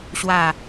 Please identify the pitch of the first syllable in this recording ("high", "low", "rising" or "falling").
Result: falling